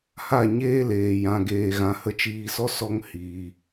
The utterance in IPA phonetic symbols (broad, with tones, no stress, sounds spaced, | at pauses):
h a˦˨ ɲ eː˦ l eː˧ j ã˧ ɡ eː˧ ɣ ã˧ h ə˧ t͡ʃ iː˧ s ɔ˦ s ɔ˦ ŋ h iː˧